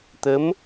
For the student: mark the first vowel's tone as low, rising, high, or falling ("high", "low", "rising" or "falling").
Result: rising